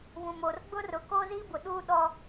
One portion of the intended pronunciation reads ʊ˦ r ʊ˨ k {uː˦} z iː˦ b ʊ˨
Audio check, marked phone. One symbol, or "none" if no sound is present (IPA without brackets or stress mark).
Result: oː˦